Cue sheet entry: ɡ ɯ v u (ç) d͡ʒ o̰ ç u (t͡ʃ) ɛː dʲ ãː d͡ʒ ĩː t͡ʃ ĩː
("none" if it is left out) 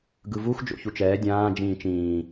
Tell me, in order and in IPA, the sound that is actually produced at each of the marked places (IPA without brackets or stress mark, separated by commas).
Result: x, t͡ʃ